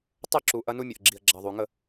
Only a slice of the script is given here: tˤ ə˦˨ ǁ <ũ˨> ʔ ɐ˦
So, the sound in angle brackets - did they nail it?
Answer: no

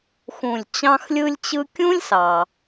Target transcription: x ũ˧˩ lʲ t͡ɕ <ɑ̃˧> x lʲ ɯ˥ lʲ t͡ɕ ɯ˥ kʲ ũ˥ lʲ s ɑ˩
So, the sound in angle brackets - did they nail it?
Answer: no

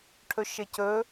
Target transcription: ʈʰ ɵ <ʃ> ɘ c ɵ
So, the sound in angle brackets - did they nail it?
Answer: yes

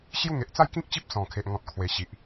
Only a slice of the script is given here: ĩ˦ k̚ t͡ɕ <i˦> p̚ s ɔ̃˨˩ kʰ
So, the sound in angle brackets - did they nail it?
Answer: yes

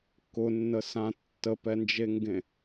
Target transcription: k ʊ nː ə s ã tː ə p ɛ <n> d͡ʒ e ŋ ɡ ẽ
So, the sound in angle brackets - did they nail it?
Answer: yes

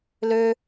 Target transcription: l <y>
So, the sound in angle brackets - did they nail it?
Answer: no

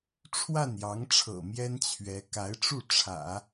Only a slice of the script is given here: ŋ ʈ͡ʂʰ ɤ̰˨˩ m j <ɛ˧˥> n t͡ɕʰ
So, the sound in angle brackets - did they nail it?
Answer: no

